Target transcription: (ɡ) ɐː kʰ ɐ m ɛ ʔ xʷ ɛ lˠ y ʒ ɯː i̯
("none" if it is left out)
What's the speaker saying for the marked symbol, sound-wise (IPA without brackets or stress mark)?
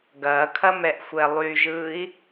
ɡ